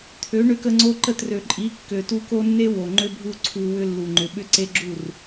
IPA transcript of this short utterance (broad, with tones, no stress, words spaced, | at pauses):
t̪ʰø˨˦ɳø˧kə˧ ŋ͡ǀo˦ǃə˦˨t rø˨ǃʼi˨˦ kːø˨tu˧ko˦nːe˦ wo˨ŋ͡ǃø˦bʱu˦ǀʰu˧ wʏ˦ lːu˨ŋ͡ǃʏ˨ɓʏ˦ ǀe˦ɡ͡ǁu˦˨r